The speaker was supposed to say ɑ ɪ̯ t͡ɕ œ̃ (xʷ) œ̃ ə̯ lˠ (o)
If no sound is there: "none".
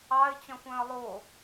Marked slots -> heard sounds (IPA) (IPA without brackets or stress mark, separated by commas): xʷ, o